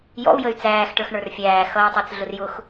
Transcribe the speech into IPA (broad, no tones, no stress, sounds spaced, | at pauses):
j ɔ̰ u̯ j ə y̯ t͡s æː x ʈ ə˞ x ɳ ə˞ r fʲ æː x ʌ y̯ tˤ i t͡s ɮ ʊ r j ʊ x